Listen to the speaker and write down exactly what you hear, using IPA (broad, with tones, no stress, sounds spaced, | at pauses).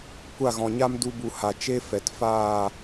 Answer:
kʷ a˦˨ ɣ ɔ̃˨ ɲ a˦ m d u˧ b u˨ h a˨ t͡ʃ e˦ f ɛ˨ t f aː˦˨